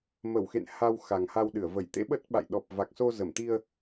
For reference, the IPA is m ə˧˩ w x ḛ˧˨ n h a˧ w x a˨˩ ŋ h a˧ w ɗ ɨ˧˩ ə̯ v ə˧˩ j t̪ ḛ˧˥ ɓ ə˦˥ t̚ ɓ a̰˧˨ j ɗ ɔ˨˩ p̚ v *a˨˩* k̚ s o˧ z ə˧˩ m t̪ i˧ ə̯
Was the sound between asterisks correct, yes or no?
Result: yes